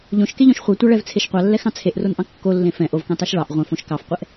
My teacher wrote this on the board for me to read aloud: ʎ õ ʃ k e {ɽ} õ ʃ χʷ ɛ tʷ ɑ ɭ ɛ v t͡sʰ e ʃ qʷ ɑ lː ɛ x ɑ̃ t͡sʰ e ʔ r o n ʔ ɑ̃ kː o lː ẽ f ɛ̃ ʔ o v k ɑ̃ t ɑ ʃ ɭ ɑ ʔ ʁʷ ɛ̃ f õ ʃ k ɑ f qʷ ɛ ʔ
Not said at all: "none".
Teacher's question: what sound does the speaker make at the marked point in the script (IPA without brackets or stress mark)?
ʎ